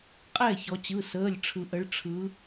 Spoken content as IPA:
qʼɛː˥˩çɔ˩˧t͡ɕɯ˩˧˩ səː˩˧˩lʲʈ͡ʂʰɯ˩ʔə˩˧ɭ ʈ͡ʂʰɯ˩˧

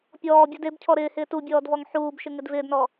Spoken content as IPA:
pʲɔːbʲud ebcʰɔ ɾɪː hɪːtubʲɔːd vɔŋħuːbʃɪ ŋɪdvɪːdnɔ

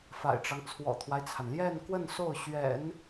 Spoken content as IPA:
fa̰˨˩ɪ̯ʈ͡ʂɑ˦ŋ t͡sʰwɔ̰˨˩t̪ʰwa˦ɪ̯t͡sʰa˩n ljɛ˥˧nkwə˥˧n so˥˩ʊ̯ɕɥɛ̰˨˩˦n

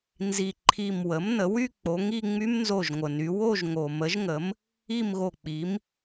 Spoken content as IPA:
nzi˧˩ ǃʰi˧˩mwə˩˥m nə˩˧wy˥˧ k͡po˩˧ŋi˥˧ŋ͡my˦˥m nzo˧˩ʒŋʷə˩ny˩˧ wo˥˧ʒ ŋo˩mə˩˥ʒŋə˩˥m | i˥˧mɣo˧˩k͡pi˩˥m

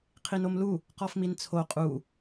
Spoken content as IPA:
qʰinomlu | qɔfmint͡sʰo qʼu

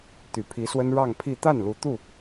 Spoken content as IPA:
t̪y˨˩pʰi˧˥swə˥n ɻɑ˥˧ŋpʰi˥˧ t̪a˥˩n lu˧˥t̪u˥˩

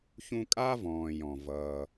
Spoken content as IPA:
çũ˦kʼa˥vɔ̃ː˨ jɔ̃˩ vʌː˨

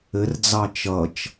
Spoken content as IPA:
ɘrd͡zɑ t͡ʃʌt͡ʃ

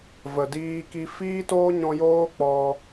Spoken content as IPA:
və˨diː˧ki˧ fiː˦toː˦ɲɔ̃˧joː˦ k͡pɔ˧

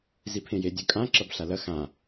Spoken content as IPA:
zipʰẽje dʲɵkʼã ǁɐbɬalɐ xã

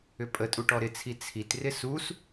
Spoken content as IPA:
ʏpʼətʼu ʈɔɾɪt͡sʰi t͡sʰitrɪ sus

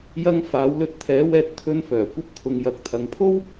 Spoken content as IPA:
jɐ˧ŋ faː˨˧wlɵ˧t̚t̪ʰɛː˨˥wɛː˧t̚ t̪ʰɵ˧nfœː˨˩kʷɐ˧p̚ t̪ʰʊ˨ŋjɐ˨k̚ t̪ʰɐ˨ŋpʰo˥w

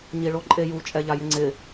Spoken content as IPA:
ɲiɭoǃʼeju t͡ʃʼɛʎajɪŋ͡ǀɪ

